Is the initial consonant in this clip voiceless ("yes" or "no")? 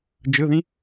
no